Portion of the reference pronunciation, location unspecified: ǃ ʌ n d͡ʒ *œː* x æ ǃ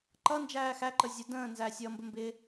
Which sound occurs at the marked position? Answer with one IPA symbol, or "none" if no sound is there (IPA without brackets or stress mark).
æː